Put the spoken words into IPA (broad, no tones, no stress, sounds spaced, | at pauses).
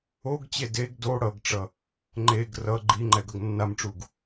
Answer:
o ɡ t͡ɕ e d e ɡ d o ɽ ʌ ɡ ʈ͡ʂ ʌ | ŋ͡ǃ e ɡ r ʌ ɡ͡ǃ i ŋ͡ǃ ɛ ɡ ʌ ɡ nː a m ʈ͡ʂ u ɡ